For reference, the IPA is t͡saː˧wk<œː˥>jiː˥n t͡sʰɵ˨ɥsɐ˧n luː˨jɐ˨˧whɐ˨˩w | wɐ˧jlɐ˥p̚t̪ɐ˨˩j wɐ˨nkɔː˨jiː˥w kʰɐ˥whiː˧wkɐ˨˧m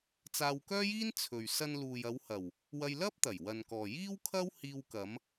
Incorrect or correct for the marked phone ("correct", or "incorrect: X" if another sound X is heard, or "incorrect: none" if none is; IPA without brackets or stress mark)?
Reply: correct